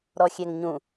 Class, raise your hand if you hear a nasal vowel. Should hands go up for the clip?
yes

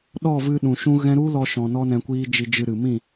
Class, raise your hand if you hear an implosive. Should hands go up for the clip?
yes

